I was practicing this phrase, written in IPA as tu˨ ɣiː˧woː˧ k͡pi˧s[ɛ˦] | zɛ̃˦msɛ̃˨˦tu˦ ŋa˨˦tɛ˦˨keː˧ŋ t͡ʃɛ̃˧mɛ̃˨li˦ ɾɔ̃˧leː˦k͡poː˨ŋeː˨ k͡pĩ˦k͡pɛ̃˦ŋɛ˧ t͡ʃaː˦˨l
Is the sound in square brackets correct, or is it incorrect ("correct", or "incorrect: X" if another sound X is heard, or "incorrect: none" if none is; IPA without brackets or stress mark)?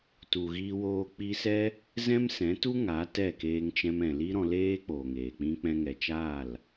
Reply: correct